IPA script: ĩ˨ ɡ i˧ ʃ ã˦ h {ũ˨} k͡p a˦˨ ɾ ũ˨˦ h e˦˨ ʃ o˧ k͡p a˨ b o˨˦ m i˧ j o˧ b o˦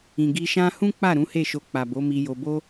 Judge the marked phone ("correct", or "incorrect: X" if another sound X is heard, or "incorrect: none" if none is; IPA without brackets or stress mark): incorrect: ũ˦